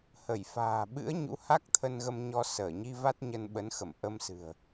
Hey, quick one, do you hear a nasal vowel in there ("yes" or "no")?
no